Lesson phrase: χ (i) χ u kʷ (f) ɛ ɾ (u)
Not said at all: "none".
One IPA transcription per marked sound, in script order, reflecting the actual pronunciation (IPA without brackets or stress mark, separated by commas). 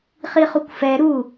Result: i, f, u